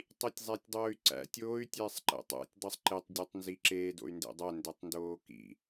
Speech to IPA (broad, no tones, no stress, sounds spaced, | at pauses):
tˤ i tʲ zˤ æ tʲ dˤ oː y̯ ǀ æ̰ tʲ oː y̯ tʲ ɛː sˤ ǃ ɛ̰ tˤ æ̰ tʲ dˤ i sˤ ǃ e tˤ dʲ o tˤ n z i ǁ eː d o̰ y̯ n d ḛ dˤ æ n d ɛ tˤ n d oː k ḭ